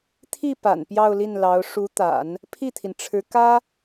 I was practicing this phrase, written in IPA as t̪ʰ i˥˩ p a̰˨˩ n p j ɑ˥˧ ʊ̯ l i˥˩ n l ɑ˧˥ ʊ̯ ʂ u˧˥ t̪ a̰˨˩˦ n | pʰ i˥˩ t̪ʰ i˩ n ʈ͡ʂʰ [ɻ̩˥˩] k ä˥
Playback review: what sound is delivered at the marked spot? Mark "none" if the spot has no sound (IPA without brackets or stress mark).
ɻ̩˧˥